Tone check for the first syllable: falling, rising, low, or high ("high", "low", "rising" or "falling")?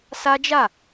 high